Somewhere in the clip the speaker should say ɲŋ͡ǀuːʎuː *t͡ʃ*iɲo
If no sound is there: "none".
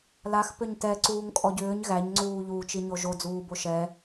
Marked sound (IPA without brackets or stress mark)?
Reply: t͡ʃ